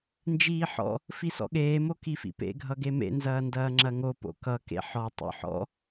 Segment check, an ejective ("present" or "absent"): absent